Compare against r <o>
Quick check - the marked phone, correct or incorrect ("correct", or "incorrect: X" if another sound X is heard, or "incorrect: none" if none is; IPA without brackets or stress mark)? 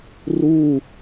incorrect: u